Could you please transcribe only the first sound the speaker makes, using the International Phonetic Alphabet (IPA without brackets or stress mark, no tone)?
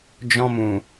d͡ʒ